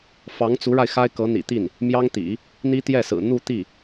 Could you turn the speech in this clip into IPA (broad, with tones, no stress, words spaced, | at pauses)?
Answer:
fɑ˧˥ŋt͡su˧˥ɻa˧ɪ̯ xa˥ɪ̯kɤ˧˥n̪ḭ˨˩t̪i˥˩n | mjɑ˥ŋt̪ḭ˨˩˦ | n̪i˥t̪jɛ˥˩sɹ̩˨˩ n̪u˥˧t̪i˥˩